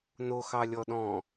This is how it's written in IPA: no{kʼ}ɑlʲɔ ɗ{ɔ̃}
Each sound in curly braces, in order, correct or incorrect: incorrect: x, correct

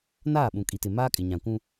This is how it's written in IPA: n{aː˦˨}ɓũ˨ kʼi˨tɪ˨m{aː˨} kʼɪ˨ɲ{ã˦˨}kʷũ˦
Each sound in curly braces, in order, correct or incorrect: correct, incorrect: aː˦, incorrect: ã˨

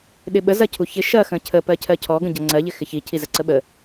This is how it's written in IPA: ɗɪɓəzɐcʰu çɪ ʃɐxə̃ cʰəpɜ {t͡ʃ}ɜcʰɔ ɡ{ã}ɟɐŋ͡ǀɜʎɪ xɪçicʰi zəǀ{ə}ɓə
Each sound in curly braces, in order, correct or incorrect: incorrect: cʰ, incorrect: ə̃, correct

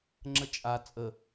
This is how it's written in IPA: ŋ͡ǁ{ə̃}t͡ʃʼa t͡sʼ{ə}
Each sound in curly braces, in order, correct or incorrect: incorrect: ə, correct

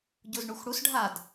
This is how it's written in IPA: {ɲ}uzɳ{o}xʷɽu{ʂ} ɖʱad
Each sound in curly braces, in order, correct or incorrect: incorrect: ɟ, incorrect: u, incorrect: s

